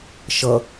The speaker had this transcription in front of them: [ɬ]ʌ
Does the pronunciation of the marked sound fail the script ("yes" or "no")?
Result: yes